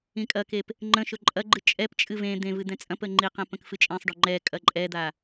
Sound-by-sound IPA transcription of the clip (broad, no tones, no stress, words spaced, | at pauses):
ĩkʼɐkep | ŋ͡ǃə̃ʃɵ ǃʼɐɡ͡ǃɨ t͡ʃʼɛpt͡ʃʼɨ vẽ d̪ẽ vɨd̪ɛ̃t͡sʼɐ̃pə ŋ͡ǃiqɛ̃ pə̃kfɨt͡ʃʼẽsˤɖɵ ŋ͡ǃɛ kʼɐǃʼɛd̪a